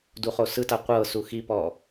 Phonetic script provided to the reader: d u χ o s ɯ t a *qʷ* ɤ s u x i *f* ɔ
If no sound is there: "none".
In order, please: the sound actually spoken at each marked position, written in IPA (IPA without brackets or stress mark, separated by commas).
qʷ, p